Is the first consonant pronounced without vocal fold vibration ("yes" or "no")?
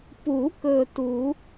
yes